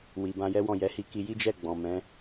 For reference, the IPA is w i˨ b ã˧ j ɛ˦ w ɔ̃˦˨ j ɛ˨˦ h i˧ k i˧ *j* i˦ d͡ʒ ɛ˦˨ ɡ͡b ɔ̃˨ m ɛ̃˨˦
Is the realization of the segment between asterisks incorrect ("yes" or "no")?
no